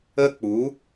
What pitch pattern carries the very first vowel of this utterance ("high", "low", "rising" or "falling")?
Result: high